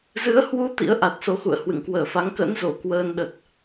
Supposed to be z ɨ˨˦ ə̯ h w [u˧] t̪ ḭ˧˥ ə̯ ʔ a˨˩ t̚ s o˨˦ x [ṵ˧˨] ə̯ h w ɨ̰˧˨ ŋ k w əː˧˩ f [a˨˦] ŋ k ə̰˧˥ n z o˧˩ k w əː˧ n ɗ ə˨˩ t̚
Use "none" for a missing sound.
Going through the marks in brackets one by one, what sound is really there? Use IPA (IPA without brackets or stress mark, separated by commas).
u˧, ṵ˧˨, a˨˦